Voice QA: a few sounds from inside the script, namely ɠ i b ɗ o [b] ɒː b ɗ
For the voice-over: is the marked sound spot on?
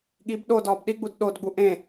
no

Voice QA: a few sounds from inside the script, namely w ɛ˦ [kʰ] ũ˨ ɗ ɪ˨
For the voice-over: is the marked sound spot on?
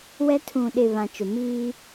no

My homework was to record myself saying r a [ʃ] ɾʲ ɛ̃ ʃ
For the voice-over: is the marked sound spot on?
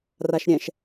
yes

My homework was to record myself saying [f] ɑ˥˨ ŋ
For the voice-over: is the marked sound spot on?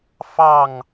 yes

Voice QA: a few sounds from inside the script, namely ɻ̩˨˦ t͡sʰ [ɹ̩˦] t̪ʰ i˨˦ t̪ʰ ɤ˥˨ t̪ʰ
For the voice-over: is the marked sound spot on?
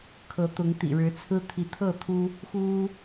yes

